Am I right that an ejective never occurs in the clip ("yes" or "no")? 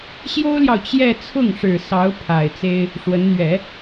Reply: yes